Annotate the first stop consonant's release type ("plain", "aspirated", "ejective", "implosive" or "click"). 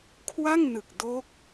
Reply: aspirated